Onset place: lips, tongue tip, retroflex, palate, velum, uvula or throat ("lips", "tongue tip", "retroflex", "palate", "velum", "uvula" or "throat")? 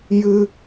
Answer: palate